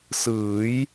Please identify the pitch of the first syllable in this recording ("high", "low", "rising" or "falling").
rising